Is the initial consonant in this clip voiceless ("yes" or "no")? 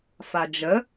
yes